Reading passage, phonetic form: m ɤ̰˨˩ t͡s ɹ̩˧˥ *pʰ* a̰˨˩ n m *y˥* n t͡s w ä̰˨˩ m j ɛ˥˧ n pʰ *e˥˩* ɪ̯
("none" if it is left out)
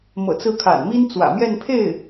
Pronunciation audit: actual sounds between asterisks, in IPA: kʰ, i˥, e˥˩

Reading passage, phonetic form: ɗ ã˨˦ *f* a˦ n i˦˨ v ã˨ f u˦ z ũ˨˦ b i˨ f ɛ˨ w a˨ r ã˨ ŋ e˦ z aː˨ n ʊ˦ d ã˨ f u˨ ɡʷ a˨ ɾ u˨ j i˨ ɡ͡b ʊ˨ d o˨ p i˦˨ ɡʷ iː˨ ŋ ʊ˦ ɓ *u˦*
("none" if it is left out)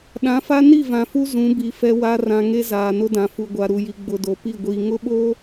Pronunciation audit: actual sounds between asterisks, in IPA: f, o˦

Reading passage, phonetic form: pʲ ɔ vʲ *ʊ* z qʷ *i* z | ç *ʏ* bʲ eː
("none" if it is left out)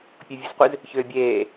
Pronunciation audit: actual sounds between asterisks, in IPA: u, ɨ, ʏː

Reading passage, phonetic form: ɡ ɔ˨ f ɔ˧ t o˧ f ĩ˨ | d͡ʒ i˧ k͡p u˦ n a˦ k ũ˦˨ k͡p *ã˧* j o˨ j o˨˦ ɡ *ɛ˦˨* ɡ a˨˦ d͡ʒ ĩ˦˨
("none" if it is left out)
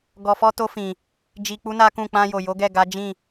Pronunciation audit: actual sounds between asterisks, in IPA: ã˧, ɛ˦˨

